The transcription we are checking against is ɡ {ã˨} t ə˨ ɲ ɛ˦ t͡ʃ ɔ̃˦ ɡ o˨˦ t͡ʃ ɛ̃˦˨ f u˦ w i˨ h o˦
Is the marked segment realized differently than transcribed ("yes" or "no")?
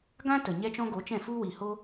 yes